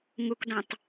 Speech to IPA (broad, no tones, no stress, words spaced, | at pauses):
ŋukdɔ̃tˤ